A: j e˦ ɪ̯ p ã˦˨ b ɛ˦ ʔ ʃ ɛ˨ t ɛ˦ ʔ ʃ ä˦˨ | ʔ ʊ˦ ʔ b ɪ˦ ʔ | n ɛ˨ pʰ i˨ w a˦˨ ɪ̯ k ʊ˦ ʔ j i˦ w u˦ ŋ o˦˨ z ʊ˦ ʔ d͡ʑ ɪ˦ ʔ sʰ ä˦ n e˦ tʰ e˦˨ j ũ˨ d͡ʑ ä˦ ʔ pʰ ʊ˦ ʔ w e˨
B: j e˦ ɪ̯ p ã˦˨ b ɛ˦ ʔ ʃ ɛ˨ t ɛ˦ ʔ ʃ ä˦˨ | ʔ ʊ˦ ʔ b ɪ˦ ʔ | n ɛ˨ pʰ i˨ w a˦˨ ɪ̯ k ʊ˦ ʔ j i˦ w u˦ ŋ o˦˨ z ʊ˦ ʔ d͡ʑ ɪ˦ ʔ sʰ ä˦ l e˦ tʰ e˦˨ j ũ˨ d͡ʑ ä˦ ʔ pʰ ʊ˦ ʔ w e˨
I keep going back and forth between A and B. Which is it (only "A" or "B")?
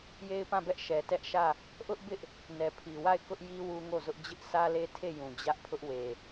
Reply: B